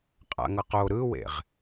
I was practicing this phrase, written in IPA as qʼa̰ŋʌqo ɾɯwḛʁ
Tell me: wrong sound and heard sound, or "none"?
none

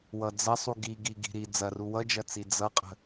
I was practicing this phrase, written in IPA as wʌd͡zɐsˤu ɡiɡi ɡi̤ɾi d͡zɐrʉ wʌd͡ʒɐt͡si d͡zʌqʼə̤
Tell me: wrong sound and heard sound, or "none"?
ʉ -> u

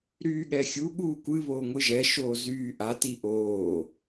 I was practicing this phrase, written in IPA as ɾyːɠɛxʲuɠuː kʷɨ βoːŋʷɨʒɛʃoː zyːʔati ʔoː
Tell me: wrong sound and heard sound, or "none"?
none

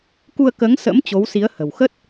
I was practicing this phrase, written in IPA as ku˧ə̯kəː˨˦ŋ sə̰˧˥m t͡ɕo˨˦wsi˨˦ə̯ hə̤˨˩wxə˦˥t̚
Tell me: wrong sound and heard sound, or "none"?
none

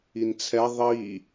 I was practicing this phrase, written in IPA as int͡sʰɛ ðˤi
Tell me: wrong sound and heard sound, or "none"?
none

